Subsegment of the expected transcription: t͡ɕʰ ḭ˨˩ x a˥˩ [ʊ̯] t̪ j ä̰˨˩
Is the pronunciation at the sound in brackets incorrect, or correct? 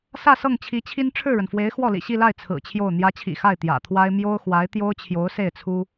incorrect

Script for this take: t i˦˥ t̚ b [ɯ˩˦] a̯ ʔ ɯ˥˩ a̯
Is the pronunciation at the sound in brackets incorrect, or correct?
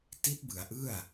correct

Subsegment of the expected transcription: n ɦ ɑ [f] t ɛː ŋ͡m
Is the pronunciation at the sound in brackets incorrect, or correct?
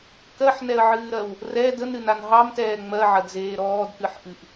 incorrect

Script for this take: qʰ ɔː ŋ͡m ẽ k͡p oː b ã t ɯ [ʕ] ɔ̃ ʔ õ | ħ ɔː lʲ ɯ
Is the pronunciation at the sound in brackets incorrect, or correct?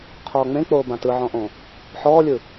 correct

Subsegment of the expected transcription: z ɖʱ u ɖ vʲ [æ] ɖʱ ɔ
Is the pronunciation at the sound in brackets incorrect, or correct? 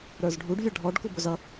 correct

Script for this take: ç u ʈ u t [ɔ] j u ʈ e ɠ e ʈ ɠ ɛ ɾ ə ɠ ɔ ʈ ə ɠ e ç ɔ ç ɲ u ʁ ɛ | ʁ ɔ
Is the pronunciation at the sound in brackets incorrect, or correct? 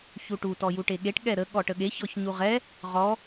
correct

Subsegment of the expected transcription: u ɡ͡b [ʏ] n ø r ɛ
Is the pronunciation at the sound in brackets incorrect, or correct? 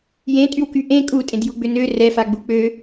correct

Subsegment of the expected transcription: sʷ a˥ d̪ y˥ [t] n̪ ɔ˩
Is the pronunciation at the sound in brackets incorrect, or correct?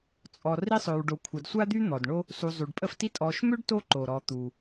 incorrect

